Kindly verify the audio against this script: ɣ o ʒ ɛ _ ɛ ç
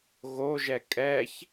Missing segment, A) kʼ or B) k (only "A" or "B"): A